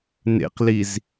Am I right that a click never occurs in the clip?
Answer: yes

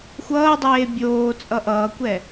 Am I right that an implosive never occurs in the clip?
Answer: yes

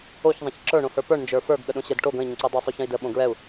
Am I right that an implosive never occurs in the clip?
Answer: no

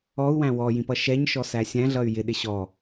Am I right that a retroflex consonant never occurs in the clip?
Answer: yes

